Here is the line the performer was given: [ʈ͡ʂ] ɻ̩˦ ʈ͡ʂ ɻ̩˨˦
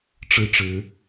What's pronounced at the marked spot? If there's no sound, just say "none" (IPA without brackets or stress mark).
ʈ͡ʂ